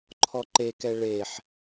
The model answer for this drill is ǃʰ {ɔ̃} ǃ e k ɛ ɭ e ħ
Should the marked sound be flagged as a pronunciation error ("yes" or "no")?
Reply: yes